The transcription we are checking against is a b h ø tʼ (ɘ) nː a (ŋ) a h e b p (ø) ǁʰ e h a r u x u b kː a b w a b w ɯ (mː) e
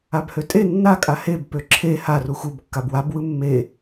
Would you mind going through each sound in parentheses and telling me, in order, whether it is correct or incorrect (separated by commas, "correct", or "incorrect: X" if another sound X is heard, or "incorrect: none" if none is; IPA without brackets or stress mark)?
incorrect: e, incorrect: kʼ, correct, correct